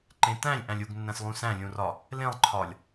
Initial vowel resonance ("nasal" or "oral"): nasal